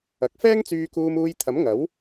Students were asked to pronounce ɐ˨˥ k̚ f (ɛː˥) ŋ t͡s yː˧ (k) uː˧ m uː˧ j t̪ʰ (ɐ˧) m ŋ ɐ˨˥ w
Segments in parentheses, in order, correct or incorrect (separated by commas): correct, correct, incorrect